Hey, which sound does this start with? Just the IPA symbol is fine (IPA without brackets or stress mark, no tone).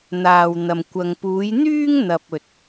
n̪